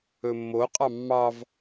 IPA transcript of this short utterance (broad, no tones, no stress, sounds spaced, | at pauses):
ɵ mː o qʼ ɑ mː ɑ v